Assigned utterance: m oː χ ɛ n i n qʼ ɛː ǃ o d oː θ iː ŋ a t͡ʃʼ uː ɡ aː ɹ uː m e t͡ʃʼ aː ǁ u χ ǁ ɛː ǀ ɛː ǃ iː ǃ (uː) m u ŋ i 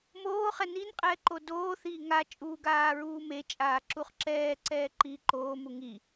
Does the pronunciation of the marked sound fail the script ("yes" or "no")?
yes